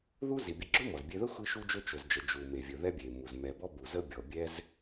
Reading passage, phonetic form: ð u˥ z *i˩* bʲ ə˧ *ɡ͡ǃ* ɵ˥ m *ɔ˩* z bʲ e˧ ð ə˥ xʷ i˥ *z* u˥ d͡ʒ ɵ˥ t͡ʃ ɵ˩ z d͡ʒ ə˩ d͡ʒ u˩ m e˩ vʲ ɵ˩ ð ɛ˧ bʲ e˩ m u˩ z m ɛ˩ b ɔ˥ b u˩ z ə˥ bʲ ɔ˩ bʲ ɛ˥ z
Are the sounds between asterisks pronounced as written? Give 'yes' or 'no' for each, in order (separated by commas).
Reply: yes, no, yes, no